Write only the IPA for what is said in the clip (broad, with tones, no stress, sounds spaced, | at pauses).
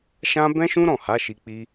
ʃ ã˧ b ɛ̃˦ ʃ ũ˦ ɾ ɔ̃˦˨ h a˨˦ ʃ i˧ k͡p i˦